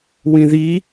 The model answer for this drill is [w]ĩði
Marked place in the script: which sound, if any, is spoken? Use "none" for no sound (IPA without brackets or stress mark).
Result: w